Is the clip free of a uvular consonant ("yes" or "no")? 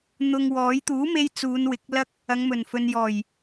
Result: yes